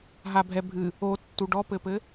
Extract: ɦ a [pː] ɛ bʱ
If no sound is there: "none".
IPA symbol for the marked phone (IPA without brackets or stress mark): bʱ